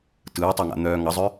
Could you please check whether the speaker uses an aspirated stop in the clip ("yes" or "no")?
no